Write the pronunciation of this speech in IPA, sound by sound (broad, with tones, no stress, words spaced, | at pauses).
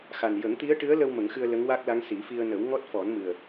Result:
xa˨˩n jə˨˩˦ŋt̪i˧˥ə̯ʈɨ˧˥ə̯lə˧w mə˨˩˦ŋxɨ˧ə̯ lə˧˥ŋwa˦˥k̚la˧˥ŋ si˨˩˦fi˧ə̯ nə˨˩˦wŋɔ˦˥t̚fɔ˨˩˦n mɨ˨˩ə̯